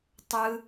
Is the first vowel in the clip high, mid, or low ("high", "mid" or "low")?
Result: high